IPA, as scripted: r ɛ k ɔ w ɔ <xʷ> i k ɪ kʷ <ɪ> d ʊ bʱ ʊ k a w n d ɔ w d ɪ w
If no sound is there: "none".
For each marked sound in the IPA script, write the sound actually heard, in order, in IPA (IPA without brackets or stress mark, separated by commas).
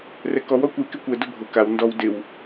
kʷ, ɛ